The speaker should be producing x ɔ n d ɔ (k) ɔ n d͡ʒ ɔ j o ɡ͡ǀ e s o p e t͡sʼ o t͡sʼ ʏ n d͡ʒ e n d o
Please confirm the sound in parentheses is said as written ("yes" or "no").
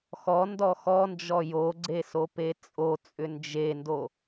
no